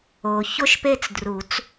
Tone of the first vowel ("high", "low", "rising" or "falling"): low